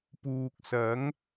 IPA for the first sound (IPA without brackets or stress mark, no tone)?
p